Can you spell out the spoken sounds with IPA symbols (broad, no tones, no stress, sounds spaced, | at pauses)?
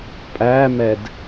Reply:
pʼ æ m ɛ d